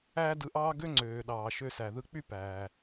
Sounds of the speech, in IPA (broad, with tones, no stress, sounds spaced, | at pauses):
æː˥ d ɯ˧ ʔ ɑː˥ ɡ ø˥ ŋ͡ǀ øː˩ ɗ ɑː˩ ʃ ø˧ s æ˩ ð ɯ˧ k͡p y˥ p æː˩